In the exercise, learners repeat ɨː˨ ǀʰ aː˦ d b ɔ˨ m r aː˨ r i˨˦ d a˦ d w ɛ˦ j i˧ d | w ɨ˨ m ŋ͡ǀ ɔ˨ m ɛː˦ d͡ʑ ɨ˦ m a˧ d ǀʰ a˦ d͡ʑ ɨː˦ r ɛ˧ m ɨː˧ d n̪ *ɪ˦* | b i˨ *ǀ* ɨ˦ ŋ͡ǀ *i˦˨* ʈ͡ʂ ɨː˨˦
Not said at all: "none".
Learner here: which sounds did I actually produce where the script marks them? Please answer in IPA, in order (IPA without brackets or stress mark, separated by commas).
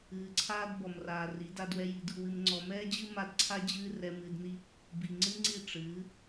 i˦, ŋ͡ǀ, i˦˨